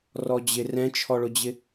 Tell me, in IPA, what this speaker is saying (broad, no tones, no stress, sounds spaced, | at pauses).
r ɔ d͡ʑ ɪ r ɛ̃ t͡ʃʰ ɔ ɭ ʊ d͡ʑ ɪ